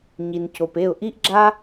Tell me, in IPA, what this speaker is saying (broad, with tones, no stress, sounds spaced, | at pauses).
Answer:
ɲ i˨ n c o˨ p e˦˨ ʊ̯ ʔ i˦ ʔ ɡ͡ǁ a˦